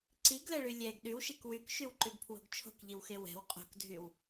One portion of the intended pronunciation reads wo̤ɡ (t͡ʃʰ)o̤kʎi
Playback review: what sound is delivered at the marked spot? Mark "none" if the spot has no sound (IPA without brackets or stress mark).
t͡ʃʰ